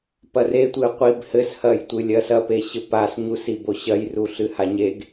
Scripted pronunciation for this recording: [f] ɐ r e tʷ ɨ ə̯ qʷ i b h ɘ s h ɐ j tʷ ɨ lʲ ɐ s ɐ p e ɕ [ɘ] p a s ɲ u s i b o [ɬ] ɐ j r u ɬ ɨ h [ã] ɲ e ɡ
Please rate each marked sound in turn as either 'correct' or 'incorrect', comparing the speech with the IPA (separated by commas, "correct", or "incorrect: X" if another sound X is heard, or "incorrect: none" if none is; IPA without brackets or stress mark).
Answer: incorrect: p, correct, incorrect: ɕ, incorrect: a